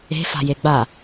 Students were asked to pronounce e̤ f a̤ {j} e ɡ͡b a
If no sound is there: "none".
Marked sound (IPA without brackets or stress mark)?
j